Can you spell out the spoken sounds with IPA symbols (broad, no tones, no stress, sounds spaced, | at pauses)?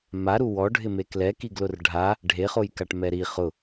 m a ɾ u w ɔ ɖʱ ɪ m e k l ɛ k i ɡ l ʊ r ɖʱ a | ɖʱ e χ o j k a ʈ m ɛ ɾ i χ ʊ